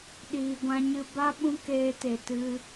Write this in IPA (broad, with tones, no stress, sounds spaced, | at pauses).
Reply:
ɗ iː˨ ɡʷ ã˧ ɲ ɨ˧ b a˦ ɓ ũ˦ k eː˧ t e˨ t ɨ˧